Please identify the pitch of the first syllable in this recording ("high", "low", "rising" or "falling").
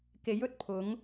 rising